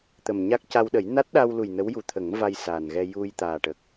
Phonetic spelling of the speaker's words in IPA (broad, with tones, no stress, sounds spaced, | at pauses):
t̪ ə˨˩ m ɲ a˦˥ k̚ c a˧ w ɗ ə˨˩˦ j n a˦˥ t̚ ɗ a˧ w l u˨˩ j n ə˧˥ w j u˨˩ t̪ʰ ə˨˩˦ ŋ v a˧ j s a˨˩ n ɣ ɛ˧ j u˧ j t̪ aː˨˩ ʈ ə˨˩ k̚